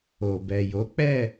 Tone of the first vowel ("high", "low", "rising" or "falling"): low